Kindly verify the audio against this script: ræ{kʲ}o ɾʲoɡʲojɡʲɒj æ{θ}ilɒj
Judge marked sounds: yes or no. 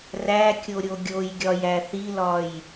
yes, yes

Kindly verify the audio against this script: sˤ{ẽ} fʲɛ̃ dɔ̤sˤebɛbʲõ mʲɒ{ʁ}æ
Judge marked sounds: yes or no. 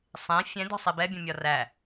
yes, no

